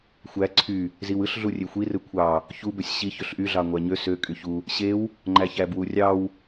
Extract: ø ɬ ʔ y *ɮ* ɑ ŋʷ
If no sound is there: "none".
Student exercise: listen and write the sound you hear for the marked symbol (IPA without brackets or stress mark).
ɮ